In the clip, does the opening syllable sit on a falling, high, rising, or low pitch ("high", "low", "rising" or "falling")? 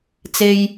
low